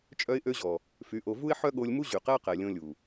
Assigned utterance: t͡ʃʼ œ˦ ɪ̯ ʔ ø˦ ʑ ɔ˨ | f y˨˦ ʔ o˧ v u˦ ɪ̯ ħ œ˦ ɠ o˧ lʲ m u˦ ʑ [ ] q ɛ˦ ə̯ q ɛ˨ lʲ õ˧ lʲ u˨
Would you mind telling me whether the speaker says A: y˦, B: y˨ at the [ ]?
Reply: B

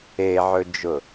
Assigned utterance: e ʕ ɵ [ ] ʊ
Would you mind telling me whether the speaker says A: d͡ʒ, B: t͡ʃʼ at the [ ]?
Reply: A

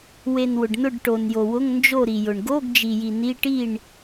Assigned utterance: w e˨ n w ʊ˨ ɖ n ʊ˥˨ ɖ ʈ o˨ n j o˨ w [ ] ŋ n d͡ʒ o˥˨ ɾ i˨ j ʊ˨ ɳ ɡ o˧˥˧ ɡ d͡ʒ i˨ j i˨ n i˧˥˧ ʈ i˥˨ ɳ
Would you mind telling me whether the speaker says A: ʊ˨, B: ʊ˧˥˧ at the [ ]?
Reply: B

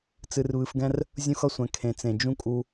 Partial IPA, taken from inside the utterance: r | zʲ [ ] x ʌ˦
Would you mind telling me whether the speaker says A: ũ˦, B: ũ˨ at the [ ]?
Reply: A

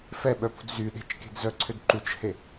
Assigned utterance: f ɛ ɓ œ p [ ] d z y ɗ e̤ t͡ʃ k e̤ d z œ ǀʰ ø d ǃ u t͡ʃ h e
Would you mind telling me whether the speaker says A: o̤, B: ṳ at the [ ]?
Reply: B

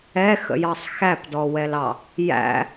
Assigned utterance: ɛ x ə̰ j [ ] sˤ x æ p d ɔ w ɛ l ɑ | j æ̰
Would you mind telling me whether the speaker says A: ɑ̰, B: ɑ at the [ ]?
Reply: B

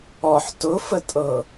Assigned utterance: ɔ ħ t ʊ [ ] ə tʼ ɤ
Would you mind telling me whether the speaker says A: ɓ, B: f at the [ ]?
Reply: B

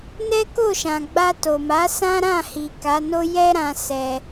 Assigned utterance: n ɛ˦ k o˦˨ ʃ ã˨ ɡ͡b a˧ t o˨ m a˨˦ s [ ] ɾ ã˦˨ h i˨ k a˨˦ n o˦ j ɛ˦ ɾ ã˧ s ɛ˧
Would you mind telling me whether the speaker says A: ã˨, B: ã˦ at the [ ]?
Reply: B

